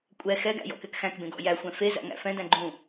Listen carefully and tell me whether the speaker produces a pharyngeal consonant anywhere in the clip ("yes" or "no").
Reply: no